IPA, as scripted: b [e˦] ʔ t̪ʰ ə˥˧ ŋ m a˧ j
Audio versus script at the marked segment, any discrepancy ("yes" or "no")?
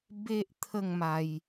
no